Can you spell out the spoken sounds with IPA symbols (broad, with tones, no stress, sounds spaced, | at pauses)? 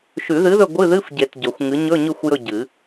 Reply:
ʃ ʉ˨˩˦ ð ɨ˨˥ ð ɵ˦˨ ɡʷ ɨ˧˥˧ ð ɨ˧˥˧ f ɟ e˨˩˦ t ɟ ɵ˨˩˦ xʷ ŋ ɨ˨˥ ɲ ɵ˧˥˧ ɲ ʉ˦˨ xʷ j ɵ˦˨ ɟ ɨ˨˩˦